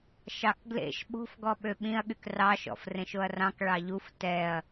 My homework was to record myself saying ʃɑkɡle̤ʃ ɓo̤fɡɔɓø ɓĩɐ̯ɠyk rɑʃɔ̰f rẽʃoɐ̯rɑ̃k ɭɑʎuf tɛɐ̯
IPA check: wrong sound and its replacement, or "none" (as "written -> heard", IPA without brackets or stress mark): e̤ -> ḛ